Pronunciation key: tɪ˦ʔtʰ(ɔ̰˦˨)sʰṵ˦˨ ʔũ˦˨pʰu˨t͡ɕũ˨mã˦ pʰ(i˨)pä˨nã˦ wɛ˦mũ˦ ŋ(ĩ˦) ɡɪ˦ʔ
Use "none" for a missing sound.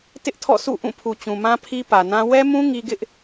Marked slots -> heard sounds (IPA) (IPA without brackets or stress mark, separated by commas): ɔ̰˦˨, i˦, i˦